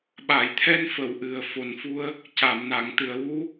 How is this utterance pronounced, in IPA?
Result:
ɓ a˨˩˨ j t̪ʰ ɛ˧ n f ə˨˩˨ w ʔ ɨ˨˩ ə̯ f o˨˩ n f u˧ ə̯ | c a˨˩˨ m n a˨˩˨ ŋ t̪ ɨ˨˩˨ ə̯ w u˧˥

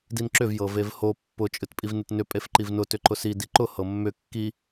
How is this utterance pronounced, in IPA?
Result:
d i n ǁ ʏ v j ɤ v e v h o pː ʊ t͡ʃʼ ɨ t pʼ i v n ɨ t n ʏ pʼ e f ǃ i v n ʊ t ʏ ǃ ʊ s i d i ǃ ʊ h ɤ mː ʏ kː i

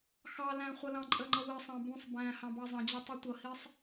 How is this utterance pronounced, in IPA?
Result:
x ɑ l æ̃ χʷ ʌ l ɑ̃ ǃʼ ə ŋ͡ǃ ʌ w i sˤ ɑ̃ b ũ sˤ b æ̃ h ɑ̃ b ɑ zˤ ə̃ d͡ʑ ɑ tˤ u tʷ ʌ h i sˤ

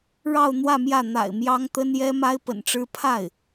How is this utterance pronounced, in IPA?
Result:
ɻ ɑ˥˧ ʊ̯ n̪ w ä˥˧ m j ä˥˩ n̪ a̰˨˩ ɪ̯ m j ɑ˥ ŋ t̪ ə˥ n j ɛ˥ m a˥ ɪ̯ p ə̰˨˩ n ʈ͡ʂ ɻ̩˥ pʰ a˥˩ ɪ̯

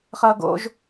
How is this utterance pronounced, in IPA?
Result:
χ ʌː ɡ o̰ ʒ

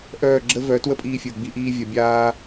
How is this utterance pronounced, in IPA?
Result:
ʔ œː˦˨ ɡ͡ǁ ə˦ v œ˨˦ t w ə˦ pʼ iː˧ fʲ əː˨ ɡ͡b i˧ ʔ iː˧ vʲ ɐ˨ bʲ aː˧

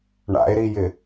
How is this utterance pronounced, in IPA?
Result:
ɳ a̰ e̯ ɾ i j ɪ

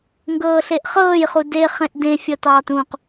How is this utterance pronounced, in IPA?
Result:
ŋ ɡ ɤː ɬ e ʔ χ ɤː j χ u d e χ ẽ ʔ d ẽ fʲ ɤ t ɑː t ũ q

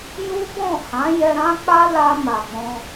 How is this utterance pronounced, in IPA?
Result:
j u˦ b ɔ̃˦˨ h ã˨˦ j ɛ˧ ɾ ã˦ k͡p a˦ l a˧ m a˨ ɡ͡b ɔ̃˧

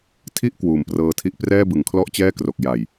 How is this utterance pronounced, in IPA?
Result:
tʰ i˥˩ ʔ k w uː˨˩ m p r ɤː˧ tʰ i˦˥ ʔ p r ɛː˥˩ b ɯ˨˩ ŋ kʰ l ɔ˥˩ ʔ t͡ɕ ɛː˥˩ k r o˨˩ k̚ j a˨˩ j

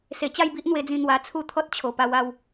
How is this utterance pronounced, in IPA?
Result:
s e˨˩ t͡ɕ a˥˧ j b i˦ ʔ n̪ w e˧ d͡z ĩ˧ n̪ w a˧ t͡sʰ u˦ t̪ʰ ɔ˦ t̚ t͡ɕʰ o˨˩ p a˧ w a˥˧ w

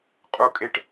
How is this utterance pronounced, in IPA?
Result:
qʼ u˦ kʼ e˦ ʈ

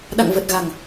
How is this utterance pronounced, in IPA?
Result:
ɗ a̰˧˨ ŋ v ə˨˩ t̚ ɣ a˨˩ ŋ

